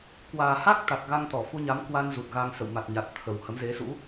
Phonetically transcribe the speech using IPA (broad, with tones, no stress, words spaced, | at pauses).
kwaː˨˩ha˦˥k̚t̪a˨˩k̚ ɣa˧ŋt̪ɔ˧˩ fu˧ɲa˨˦mkwa˧nzu˨˩t̚ ɣa˧ŋ sə̰˧˨w ma˨˩t̚ɲa˨˩t̚ t̪ʰə˨˩whə˨˦m ze˨˦sṵ˧˥